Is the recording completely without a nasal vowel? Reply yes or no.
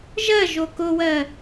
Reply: yes